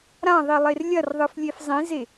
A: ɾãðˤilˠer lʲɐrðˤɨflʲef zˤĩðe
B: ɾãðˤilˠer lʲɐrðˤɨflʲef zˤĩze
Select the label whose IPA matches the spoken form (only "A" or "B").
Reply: B